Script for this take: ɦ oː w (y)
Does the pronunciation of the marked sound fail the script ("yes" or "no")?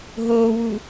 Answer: yes